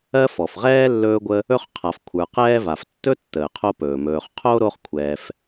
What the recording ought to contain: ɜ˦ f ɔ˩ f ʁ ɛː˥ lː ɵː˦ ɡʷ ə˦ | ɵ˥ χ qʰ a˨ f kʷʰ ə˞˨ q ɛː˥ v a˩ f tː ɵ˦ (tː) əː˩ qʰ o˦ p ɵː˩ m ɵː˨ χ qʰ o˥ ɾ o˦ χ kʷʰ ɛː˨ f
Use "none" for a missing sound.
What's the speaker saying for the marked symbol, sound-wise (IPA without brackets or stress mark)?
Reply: tː